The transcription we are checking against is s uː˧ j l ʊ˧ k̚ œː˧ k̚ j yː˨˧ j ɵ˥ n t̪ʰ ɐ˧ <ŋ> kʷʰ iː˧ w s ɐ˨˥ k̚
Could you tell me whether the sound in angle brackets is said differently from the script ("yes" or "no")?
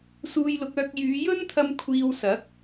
yes